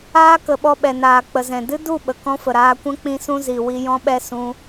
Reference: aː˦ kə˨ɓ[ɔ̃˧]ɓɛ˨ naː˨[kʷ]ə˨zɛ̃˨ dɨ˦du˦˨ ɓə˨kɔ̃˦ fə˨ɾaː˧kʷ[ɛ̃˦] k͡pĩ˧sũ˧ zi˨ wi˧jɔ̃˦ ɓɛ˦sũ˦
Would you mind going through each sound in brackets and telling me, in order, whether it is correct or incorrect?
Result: incorrect: ɔ˧, incorrect: k͡p, correct

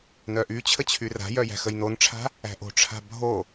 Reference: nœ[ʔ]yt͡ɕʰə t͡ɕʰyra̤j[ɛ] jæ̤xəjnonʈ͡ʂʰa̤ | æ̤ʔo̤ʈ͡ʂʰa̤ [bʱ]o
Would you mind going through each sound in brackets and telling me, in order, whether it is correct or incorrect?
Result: correct, incorrect: œ, correct

